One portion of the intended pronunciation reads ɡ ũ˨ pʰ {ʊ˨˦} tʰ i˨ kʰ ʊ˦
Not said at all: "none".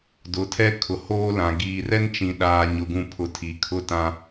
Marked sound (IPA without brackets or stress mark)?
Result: ʊ˨˦